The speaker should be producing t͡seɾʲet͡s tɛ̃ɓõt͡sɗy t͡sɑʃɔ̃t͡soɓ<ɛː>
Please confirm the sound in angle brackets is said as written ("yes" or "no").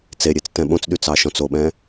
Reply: no